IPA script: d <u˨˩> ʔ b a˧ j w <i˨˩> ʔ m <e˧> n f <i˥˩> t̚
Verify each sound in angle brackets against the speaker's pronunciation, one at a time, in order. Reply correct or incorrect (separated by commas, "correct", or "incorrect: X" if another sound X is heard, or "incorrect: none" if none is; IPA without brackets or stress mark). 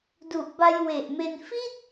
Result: correct, incorrect: e˨˩, correct, correct